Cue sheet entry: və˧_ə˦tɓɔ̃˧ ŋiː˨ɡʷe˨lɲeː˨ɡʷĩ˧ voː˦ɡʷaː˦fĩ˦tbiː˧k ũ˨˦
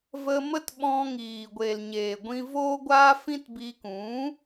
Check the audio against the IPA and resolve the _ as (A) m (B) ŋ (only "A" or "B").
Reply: A